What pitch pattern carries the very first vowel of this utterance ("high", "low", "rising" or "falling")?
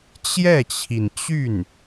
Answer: falling